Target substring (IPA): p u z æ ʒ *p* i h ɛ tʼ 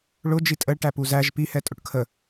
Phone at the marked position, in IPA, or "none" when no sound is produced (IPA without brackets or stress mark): p